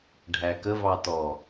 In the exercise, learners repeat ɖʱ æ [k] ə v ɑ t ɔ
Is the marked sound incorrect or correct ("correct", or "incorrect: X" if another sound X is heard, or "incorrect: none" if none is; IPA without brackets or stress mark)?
correct